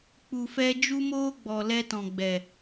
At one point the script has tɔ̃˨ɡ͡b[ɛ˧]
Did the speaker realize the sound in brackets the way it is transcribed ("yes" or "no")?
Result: no